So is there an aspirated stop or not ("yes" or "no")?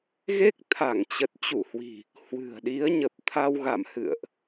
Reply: yes